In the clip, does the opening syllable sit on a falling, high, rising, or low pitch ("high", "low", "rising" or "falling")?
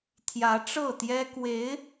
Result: rising